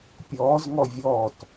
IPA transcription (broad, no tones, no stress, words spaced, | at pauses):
pʲɔːzŋɔ vʲɔːt